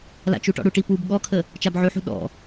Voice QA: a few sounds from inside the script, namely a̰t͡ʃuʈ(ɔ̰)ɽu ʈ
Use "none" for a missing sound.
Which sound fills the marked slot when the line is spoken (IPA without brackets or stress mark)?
ɔ̰